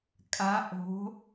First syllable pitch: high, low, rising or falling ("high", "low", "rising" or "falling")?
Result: rising